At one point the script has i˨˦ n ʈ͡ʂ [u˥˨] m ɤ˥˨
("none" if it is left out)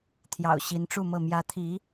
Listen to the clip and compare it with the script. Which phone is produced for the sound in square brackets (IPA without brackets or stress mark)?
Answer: u˥˨